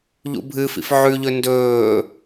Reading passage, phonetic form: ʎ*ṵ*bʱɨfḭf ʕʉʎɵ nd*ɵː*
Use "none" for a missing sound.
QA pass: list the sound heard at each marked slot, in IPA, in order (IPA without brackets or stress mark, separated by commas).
ṵ, ɵː